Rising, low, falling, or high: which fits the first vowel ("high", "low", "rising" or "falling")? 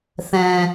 low